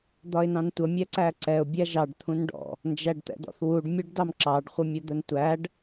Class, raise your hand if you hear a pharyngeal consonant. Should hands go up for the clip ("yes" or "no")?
no